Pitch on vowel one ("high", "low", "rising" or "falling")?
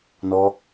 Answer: high